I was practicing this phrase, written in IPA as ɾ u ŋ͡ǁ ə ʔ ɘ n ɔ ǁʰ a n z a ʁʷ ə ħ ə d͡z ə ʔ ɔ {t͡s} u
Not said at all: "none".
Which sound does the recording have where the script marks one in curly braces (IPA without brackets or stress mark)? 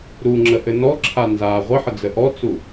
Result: t͡s